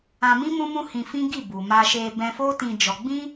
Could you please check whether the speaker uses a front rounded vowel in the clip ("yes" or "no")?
no